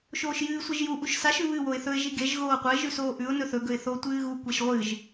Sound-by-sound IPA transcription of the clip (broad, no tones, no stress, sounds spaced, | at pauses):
ʃ oː ʃ j ɨː sʷ i ʒ j u ʔ u ʃ s a ʃ ʉ β ɨ w o ɪ̯ θ ɵ ɪ̯ ʒ i ɡ e ʒ ɣ oː qʷ ɐ ɪ̯ ʒ ʉ s oː ʔ ʉ ʊ̯ n ɵ θ ɵ ɡ ɵ ɪ̯ θ o tʷ ɨː ɣ u kʷ e ʃ ʁʷ ɨ ʒ